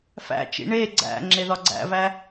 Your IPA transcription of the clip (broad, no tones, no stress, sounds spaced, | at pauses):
f æ̰ t͡ʃ ḭ ɳ e ɡ͡ǀ æ̰ ŋ͡ǁ e ð ɒ ɡ͡ǀ æ̰ v æ